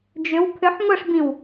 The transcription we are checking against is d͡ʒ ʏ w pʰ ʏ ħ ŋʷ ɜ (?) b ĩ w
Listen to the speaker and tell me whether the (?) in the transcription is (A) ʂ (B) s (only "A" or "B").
A